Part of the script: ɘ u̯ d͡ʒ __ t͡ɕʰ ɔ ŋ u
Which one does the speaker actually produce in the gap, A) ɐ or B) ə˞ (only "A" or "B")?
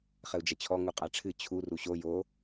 A